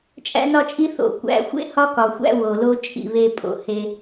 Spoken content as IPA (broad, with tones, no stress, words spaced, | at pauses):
t͡ʃʼæ̰˦nɒ˦t͡ʃʼi˦ θo̰˨ kʷæ̰˨xʷḛ˦hɒ˦ kɒ˨xʷæ̰˦wo˨lo˦ t͡ʃʼḭ˦˨βe˦pʼo̰˨ he˦